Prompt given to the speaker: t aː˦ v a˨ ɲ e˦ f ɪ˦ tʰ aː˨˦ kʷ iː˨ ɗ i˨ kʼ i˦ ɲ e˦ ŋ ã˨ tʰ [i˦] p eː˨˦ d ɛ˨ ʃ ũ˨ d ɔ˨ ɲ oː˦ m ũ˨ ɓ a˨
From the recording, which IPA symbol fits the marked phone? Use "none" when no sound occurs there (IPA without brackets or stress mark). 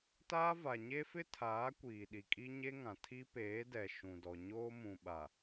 i˦